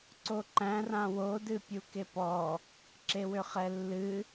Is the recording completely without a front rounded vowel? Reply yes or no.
no